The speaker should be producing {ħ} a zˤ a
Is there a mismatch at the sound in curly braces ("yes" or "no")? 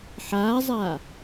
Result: no